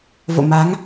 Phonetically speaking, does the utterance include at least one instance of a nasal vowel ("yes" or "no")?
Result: no